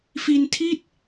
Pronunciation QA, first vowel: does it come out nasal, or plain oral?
oral